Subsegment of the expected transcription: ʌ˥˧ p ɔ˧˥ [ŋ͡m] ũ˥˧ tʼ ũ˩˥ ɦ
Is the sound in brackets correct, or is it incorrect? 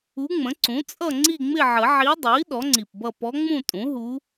correct